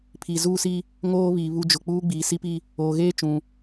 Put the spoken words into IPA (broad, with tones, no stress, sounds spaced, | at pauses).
pʰ i˨ z uː˦ s i˦ | ŋ oː˦ β iː˨ β u˦ d͡ʒ ʊ˨ k͡p uː˦ ɡ͡b iː˨ s i˦ p i˦ | oː˨ ɣ eː˦ t͡ʃ ũ˨